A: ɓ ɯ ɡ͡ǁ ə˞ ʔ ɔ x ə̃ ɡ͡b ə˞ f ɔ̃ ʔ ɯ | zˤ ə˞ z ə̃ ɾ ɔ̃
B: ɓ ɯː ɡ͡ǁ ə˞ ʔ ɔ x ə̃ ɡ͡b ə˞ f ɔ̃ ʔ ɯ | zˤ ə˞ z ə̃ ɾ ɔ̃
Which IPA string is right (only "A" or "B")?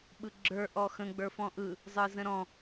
A